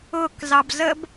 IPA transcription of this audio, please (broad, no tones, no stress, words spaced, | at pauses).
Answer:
ʊk zɑbzəb